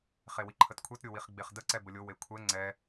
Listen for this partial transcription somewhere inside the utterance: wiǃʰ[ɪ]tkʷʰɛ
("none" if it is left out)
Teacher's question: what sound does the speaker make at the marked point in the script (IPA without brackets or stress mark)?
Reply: ə